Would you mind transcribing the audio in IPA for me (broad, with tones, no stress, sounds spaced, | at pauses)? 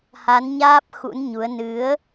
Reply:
h a˨˦ n ɲ aː˦˥ p̚ x ṵ˧˥ n ɲ u˨˦ ə̯ n ɨ˨˦ ə̯